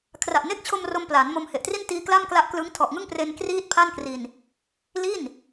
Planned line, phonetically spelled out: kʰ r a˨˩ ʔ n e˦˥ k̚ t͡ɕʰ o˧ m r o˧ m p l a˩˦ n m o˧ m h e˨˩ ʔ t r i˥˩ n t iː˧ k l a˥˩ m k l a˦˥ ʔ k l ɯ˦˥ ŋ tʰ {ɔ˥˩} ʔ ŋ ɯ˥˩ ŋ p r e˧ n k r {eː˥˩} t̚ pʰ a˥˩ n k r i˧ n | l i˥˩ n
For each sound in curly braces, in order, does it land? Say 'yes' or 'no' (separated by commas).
no, no